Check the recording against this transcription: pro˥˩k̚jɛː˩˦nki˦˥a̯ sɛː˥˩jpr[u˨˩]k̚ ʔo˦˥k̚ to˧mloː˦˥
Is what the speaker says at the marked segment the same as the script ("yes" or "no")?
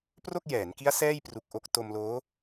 yes